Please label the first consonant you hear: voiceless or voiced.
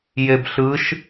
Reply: voiced